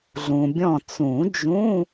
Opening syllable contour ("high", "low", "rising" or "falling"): low